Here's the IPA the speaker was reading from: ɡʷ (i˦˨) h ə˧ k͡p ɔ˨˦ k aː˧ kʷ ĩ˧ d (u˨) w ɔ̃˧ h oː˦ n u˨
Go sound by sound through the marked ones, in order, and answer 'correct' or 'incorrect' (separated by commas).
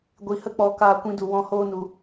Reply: incorrect, correct